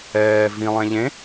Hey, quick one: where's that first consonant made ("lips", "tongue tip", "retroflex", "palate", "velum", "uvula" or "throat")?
lips